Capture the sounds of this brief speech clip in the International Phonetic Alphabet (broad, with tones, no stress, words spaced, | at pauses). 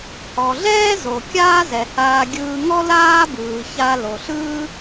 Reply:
hɔ˩ɮɛː˥zo˩ kʲaː˥zɛ˩haː˧ ɡʲɯː˧ŋɔ˥ laː˥bɯː˩ça˧ lo˩ɬɯː˥